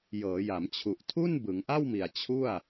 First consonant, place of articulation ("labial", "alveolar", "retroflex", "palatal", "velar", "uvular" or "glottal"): palatal